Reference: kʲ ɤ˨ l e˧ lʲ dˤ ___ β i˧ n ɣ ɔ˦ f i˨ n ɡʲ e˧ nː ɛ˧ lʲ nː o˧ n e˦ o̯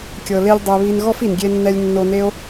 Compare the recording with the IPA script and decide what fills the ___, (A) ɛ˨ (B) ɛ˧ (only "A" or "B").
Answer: B